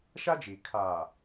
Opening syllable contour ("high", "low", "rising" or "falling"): high